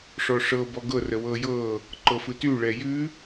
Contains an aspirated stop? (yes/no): no